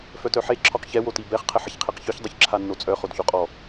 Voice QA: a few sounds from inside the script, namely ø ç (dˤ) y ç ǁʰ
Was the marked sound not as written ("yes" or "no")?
no